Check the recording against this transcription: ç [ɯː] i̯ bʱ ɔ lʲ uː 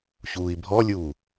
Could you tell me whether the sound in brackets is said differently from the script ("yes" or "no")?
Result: yes